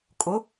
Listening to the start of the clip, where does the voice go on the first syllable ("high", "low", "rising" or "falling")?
rising